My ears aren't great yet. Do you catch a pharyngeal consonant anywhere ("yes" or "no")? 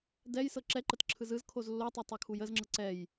no